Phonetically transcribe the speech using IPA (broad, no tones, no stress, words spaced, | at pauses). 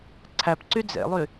ǀʰæpǀy d͡zḛlˠy